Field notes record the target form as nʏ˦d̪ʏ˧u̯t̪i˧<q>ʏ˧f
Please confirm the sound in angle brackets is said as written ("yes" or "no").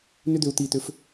no